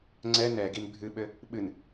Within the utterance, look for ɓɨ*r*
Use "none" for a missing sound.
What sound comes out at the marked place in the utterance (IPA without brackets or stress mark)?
n